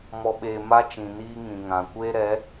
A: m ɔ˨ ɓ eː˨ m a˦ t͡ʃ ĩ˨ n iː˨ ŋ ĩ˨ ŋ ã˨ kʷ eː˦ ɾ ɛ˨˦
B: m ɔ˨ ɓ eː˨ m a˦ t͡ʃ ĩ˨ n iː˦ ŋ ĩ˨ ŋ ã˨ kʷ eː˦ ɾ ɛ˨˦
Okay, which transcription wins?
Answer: B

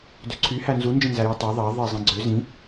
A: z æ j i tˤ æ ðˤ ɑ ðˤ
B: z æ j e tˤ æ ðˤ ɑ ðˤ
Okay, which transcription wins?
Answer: B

